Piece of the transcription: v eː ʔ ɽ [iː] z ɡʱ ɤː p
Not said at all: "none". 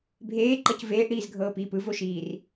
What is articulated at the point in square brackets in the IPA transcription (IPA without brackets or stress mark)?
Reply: iː